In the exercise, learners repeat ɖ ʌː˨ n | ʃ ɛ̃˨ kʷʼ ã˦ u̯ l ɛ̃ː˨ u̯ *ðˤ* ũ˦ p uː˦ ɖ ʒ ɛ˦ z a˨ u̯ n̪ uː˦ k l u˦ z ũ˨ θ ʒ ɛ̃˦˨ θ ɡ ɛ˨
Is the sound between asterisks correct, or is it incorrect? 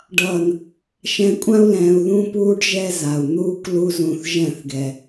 incorrect